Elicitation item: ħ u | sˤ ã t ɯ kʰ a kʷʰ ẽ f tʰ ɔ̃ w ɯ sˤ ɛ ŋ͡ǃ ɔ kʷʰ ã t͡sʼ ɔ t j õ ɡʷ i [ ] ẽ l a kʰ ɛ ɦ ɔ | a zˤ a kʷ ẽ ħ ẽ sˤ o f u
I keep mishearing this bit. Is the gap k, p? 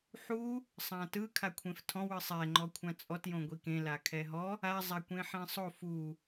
k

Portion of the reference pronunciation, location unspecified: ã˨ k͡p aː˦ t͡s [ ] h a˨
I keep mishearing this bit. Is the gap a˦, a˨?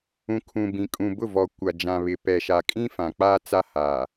a˦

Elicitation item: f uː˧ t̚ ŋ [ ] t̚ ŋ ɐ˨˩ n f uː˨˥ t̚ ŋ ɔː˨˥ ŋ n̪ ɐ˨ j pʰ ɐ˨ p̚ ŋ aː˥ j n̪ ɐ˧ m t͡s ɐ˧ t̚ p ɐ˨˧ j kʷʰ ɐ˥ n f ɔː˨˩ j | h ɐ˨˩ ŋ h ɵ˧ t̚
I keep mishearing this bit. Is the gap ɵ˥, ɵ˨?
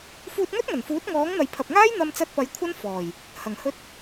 ɵ˥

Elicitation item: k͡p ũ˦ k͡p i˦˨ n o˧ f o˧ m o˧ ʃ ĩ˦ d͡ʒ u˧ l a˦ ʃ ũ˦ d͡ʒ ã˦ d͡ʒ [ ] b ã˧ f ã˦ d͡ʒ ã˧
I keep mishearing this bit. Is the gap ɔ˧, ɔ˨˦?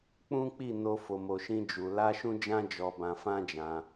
ɔ˧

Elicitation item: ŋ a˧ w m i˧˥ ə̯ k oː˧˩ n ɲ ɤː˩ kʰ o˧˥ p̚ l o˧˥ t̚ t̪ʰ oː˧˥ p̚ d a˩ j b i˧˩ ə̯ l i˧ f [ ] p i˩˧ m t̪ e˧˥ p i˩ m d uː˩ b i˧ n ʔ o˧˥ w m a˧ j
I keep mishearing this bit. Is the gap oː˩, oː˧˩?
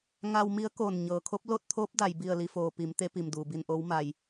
oː˩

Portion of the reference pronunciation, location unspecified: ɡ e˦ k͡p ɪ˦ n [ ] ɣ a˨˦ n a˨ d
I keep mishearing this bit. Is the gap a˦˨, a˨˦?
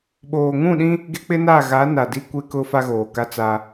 a˦˨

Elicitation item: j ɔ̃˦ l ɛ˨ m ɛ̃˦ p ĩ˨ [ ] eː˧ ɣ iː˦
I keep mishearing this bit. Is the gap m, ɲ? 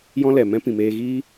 m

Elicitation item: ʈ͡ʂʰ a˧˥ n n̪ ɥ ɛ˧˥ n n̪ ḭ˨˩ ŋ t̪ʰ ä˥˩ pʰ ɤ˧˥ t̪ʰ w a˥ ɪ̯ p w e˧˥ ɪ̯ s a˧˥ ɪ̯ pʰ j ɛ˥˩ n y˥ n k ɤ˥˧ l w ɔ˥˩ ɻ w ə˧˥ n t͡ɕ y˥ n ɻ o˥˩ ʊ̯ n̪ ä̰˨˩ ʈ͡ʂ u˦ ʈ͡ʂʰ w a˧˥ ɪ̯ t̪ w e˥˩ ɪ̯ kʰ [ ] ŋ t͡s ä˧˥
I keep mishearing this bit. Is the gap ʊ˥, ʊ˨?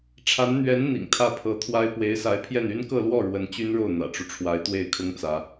ʊ˥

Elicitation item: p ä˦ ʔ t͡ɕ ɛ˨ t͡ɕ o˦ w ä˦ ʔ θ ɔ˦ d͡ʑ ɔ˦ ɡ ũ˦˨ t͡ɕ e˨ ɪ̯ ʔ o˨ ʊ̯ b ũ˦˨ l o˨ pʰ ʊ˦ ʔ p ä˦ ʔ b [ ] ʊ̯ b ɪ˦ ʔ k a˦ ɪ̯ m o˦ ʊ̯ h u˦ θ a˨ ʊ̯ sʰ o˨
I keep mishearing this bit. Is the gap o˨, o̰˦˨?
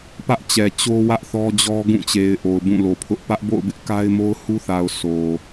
o̰˦˨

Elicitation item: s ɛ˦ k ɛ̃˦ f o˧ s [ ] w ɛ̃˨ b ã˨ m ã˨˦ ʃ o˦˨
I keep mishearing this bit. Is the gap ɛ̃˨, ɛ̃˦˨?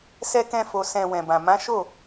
ɛ̃˨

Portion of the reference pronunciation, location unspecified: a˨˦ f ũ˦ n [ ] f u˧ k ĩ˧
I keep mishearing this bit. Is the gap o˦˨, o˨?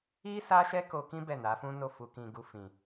o˦˨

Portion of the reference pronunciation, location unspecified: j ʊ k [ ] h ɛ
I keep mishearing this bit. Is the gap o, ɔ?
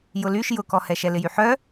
ɔ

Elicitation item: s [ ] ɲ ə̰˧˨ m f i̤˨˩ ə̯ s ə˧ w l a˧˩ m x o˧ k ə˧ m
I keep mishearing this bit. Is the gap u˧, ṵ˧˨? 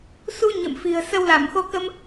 u˧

